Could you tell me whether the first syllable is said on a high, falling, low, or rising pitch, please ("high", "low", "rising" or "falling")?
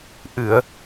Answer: low